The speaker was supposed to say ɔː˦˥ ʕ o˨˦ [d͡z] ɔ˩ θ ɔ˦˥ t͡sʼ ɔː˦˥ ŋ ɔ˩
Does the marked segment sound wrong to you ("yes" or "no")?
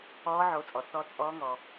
yes